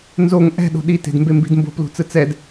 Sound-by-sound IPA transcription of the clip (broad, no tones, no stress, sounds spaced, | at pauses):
n z o ŋ ʔ ɛ̤ ɗ o̤ ɗ i t e̤ d m b e m b i̤ d m b o̤ p l ṳ t͡s ɯ t͡s ɛ d